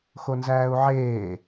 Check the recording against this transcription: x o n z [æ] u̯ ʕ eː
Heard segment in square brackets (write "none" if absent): æː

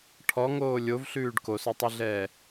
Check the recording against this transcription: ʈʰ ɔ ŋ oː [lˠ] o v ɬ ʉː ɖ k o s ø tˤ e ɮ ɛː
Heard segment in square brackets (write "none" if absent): lʲ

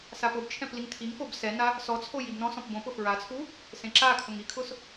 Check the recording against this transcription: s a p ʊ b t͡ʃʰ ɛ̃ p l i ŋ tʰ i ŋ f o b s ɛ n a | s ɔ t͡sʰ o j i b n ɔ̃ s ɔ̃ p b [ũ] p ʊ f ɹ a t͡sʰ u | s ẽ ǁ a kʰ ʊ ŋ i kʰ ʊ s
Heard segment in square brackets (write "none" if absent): õ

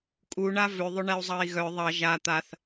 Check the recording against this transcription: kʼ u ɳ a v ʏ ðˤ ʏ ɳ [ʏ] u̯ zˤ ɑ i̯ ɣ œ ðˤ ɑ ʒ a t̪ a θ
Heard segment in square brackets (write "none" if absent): ɛ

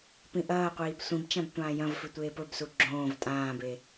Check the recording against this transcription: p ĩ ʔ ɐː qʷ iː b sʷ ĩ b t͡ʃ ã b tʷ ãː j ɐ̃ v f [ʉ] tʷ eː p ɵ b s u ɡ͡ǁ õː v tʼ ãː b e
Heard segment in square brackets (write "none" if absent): ʉ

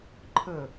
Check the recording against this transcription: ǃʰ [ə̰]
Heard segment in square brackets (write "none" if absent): ə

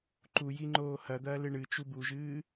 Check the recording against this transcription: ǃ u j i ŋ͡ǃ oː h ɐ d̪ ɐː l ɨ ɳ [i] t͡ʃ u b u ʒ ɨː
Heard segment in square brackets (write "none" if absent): ɨ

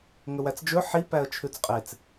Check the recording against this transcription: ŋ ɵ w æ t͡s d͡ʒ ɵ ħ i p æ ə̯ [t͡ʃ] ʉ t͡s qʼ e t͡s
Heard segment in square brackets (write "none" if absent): t͡ʃʰ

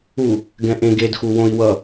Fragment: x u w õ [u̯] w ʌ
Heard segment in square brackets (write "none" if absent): i̯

